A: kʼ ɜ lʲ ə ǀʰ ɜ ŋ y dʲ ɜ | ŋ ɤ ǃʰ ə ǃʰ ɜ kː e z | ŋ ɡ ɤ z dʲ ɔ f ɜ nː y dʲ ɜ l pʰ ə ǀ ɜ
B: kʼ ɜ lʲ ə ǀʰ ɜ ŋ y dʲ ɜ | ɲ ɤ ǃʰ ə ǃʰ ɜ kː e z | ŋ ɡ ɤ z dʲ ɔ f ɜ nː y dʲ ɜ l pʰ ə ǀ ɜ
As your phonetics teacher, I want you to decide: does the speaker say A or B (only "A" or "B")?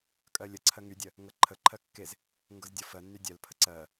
A